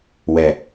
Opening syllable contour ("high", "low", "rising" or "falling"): low